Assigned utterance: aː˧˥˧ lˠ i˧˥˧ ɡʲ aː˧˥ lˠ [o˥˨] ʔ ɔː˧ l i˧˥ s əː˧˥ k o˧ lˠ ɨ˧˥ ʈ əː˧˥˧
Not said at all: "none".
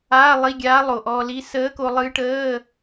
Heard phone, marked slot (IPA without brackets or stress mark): o˨˩